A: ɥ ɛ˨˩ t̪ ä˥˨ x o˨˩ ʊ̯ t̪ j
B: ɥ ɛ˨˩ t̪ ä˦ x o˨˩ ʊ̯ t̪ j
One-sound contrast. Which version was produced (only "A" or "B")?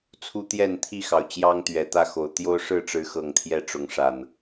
A